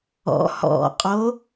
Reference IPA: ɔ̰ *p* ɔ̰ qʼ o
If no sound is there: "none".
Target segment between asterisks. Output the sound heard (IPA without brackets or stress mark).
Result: h